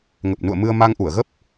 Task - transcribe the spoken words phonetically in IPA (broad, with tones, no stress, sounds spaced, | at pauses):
ŋ ə˨˩ p̚ n ṵ˧˨ ə̯ m ɨ˧ ə̯ m a˧ ŋ ʔ u˧˩ ə̯ ɣ ə˦˥ p̚